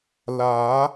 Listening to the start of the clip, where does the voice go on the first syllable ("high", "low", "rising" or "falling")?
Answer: rising